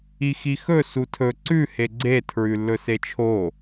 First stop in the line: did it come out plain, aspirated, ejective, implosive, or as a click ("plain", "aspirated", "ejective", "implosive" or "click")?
aspirated